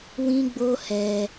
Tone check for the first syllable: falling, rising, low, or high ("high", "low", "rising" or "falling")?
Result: high